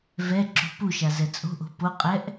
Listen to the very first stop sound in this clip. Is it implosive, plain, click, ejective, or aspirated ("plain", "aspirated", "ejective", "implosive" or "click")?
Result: click